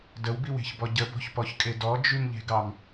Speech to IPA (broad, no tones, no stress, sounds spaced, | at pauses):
d ə w b i w e̤ ç b ɔ ɟ ə b ɔ̤ ç p ɔ ç kʼ e d ɔ d͡ʒ y m ʎ e̤ ɡ ɑ m